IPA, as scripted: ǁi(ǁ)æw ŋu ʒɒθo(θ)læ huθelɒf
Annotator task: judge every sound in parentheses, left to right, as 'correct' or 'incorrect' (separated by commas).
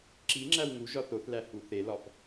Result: incorrect, correct